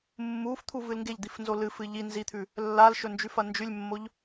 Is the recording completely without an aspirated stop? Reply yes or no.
no